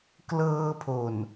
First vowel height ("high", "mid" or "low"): mid